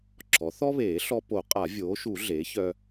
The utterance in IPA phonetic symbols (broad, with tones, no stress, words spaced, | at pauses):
ǁʰɔ˩˥ θɔ˥βeː˨˩˦ ɬɔ˧po˨˩˦ qʼa˨˩˦vʲoː˩˥ʃu˨˩˦ ɮeː˩˥çœ˧